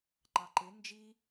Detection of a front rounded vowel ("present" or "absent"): absent